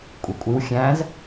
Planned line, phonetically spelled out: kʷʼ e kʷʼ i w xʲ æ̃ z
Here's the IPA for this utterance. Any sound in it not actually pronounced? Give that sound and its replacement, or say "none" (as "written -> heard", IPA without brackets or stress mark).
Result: none